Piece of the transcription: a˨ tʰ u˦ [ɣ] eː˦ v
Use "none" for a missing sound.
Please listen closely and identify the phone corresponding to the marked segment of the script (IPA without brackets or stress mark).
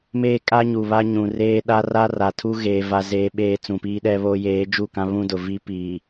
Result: ɣ